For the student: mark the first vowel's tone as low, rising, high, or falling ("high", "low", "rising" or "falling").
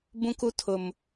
high